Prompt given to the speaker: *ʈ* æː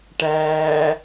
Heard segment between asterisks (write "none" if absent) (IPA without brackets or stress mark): ʈ